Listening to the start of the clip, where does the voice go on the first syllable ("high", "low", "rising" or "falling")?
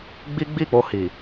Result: high